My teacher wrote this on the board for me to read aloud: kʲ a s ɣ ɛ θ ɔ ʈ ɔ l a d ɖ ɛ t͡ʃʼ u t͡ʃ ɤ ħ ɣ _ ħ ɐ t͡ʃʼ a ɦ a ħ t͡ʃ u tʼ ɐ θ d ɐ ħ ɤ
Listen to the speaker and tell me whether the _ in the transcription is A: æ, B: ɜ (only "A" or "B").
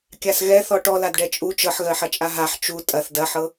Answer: B